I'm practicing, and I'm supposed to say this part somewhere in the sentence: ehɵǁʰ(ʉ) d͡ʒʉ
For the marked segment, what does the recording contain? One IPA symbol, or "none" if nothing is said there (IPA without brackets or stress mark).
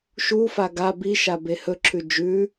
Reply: ʉ